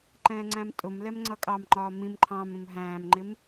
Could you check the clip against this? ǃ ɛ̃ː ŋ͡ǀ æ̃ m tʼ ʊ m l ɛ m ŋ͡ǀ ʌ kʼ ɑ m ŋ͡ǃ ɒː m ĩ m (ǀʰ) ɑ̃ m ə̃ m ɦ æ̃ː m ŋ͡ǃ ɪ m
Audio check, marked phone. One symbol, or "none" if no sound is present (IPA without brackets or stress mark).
ǃʰ